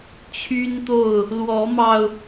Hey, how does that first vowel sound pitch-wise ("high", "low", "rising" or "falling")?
high